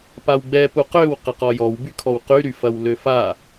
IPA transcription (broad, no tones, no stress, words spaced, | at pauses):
pawɡ͡bɛ puqøw qɐqɔjɔw bykʰɔwqy ɾyfɐwløfa